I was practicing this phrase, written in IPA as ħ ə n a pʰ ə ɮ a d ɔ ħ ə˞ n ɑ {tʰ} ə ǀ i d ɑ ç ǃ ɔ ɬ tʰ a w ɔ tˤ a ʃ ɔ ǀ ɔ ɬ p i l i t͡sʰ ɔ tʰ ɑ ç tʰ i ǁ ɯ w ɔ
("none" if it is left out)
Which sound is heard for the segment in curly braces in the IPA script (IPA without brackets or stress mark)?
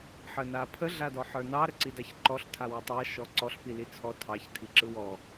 ɾ